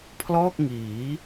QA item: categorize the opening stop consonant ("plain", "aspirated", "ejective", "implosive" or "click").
aspirated